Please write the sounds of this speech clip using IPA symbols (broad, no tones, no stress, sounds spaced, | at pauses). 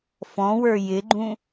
f ɔ̃ w ə˞ j ɪ ɡ͡ǃ ũ